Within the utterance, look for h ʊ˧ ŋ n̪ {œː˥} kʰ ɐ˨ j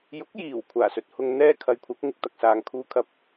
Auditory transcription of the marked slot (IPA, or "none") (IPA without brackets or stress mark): ɛː˥